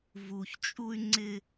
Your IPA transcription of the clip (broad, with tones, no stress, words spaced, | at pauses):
vu˨çt͡ʃʼu˧y̯ŋ͡ǀɪ˧